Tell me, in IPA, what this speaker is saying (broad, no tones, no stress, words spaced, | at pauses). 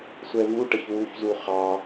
sʷɛvuʈəç wuçzu χɑ